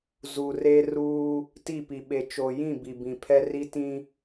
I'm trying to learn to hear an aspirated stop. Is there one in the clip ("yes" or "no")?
yes